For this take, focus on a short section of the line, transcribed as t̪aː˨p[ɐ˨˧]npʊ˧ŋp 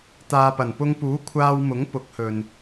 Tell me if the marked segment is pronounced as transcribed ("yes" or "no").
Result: no